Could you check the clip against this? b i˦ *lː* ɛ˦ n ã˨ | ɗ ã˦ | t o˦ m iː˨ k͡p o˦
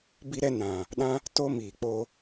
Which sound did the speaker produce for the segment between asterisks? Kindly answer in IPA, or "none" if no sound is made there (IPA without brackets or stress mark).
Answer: ɾ